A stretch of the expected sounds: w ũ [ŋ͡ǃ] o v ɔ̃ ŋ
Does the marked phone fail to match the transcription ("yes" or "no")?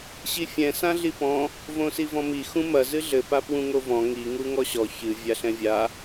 yes